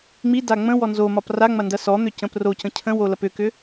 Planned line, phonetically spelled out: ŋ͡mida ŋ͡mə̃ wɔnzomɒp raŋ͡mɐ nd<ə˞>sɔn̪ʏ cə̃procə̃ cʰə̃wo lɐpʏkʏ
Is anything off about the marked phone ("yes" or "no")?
yes